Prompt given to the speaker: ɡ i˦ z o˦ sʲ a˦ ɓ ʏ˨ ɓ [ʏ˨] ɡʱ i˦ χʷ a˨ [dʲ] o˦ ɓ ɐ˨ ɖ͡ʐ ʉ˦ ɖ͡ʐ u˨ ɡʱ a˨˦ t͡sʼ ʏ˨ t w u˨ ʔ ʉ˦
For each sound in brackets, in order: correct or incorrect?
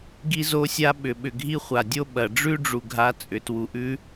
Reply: correct, correct

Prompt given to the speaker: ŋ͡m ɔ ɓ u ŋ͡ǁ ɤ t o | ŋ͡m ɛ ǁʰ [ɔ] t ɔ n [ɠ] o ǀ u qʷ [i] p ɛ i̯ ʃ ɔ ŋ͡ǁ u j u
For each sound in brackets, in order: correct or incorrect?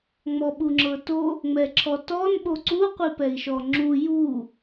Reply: correct, incorrect, correct

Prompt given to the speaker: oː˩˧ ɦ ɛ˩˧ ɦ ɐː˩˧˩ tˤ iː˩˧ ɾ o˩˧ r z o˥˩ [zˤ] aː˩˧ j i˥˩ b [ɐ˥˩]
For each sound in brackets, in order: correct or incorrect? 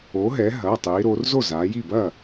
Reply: incorrect, correct

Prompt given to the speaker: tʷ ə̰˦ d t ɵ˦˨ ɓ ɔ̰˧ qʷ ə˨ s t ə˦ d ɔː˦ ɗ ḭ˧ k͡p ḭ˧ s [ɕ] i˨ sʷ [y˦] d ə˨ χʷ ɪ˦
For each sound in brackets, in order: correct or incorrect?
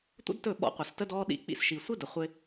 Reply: incorrect, incorrect

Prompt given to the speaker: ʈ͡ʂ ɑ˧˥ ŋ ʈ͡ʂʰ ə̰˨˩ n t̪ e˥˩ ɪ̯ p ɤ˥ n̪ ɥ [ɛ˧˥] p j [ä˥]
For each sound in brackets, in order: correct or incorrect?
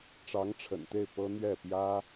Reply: incorrect, correct

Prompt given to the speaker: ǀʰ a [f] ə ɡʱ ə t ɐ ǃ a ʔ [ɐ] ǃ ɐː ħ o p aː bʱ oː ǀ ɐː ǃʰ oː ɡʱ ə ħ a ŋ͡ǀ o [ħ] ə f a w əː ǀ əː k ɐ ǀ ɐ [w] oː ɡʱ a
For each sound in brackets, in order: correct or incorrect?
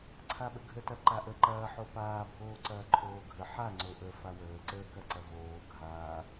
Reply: incorrect, incorrect, incorrect, incorrect

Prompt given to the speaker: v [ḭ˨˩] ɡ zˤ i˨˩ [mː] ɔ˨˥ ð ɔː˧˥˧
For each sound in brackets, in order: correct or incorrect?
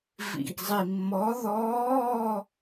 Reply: correct, correct

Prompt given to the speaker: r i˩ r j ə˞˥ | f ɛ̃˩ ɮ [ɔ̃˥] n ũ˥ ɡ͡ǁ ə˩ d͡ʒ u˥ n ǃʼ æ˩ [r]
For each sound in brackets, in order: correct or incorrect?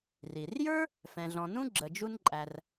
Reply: incorrect, correct

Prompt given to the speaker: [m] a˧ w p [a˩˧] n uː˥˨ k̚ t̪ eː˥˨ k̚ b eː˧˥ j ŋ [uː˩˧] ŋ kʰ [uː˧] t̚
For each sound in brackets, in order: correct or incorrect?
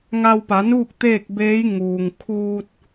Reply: incorrect, correct, incorrect, correct

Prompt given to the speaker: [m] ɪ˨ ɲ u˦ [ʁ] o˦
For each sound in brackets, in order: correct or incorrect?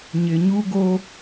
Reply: incorrect, incorrect

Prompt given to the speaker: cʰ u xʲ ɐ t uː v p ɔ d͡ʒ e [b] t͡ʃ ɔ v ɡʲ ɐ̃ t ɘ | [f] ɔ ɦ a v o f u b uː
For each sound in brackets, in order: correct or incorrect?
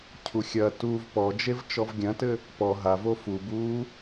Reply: incorrect, incorrect

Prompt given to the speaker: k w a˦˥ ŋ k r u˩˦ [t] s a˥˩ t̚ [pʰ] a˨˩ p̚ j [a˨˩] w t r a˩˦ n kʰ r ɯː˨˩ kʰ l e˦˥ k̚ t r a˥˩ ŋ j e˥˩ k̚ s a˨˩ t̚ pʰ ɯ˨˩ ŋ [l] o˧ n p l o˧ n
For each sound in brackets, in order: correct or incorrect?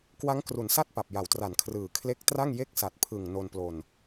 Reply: incorrect, incorrect, incorrect, incorrect

